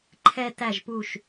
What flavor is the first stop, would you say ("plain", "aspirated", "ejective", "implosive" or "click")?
click